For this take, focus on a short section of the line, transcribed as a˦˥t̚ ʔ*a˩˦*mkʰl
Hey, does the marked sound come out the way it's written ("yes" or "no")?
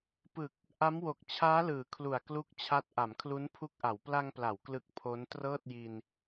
yes